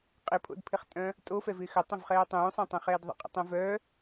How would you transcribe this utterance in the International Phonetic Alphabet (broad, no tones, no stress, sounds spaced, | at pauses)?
qʼ ɪ pʰ o̰ d pʰ ɪ χ tʼ œ̃ | tʼ o f ɛ v ɪː x ə tˤ ə̃ v χ ɛː tˤ ũː sˤ ɛ̃ tˤ ɛ̃ χ ɛː d ðˤ ə̰ qʼ ə̰ tˤ ɛ̃ v œ